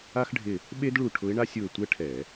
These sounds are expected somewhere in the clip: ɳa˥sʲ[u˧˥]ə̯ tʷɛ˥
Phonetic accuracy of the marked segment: incorrect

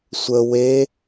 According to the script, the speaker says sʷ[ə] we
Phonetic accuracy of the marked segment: correct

